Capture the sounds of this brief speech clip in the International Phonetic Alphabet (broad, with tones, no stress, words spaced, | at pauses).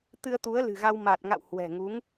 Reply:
t̪ɨ˧ə̯t̪u˨˦ə̯lɨ̤˨˩ɣa˧w ma˨˩t̚ŋa̰˧˨w hwɛ̤˨˩ŋu˨˦ŋ